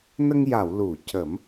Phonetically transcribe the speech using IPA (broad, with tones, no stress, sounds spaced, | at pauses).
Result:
n ə˧ ŋ j a˨˩˨ w l u˨˩˨ c ə˨˩˦ m